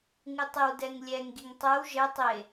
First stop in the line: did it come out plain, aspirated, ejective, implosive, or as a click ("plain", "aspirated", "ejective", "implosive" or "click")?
plain